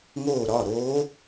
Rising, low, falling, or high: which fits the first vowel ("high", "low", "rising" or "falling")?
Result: falling